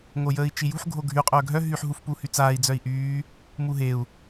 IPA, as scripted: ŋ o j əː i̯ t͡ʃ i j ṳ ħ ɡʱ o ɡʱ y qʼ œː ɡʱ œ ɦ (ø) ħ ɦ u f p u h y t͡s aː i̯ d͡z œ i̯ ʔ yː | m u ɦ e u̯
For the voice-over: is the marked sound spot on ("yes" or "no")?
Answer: no